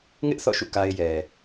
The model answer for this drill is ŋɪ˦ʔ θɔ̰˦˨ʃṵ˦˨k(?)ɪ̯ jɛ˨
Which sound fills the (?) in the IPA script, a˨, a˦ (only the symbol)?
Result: a˦